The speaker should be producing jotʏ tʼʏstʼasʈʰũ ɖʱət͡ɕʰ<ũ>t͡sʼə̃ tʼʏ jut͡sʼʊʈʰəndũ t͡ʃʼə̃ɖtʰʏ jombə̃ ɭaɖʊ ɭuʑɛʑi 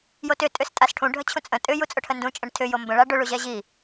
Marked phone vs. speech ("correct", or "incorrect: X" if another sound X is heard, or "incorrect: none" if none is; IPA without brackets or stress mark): correct